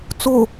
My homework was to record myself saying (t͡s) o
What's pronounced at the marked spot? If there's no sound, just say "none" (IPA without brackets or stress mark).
t͡s